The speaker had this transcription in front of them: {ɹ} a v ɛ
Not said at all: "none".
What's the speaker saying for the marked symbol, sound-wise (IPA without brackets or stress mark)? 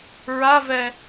ɹ